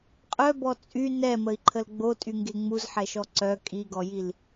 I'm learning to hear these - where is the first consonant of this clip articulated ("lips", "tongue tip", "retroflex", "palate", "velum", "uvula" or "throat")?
uvula